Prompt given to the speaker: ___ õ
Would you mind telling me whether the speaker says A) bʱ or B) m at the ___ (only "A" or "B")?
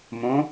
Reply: B